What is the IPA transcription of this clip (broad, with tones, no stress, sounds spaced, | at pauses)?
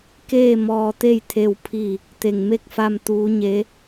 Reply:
k eː˥˨ m ɔː˧ t̪ e˥˨ j t̪ʰ e˥˨ w pʰ i˥˨ | t̪ e˧˩ ŋ m e˥˨ k̚ f a˧ m t̪ uː˧˥ ɲ e˧˥